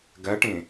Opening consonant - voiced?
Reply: yes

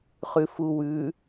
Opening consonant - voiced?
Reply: no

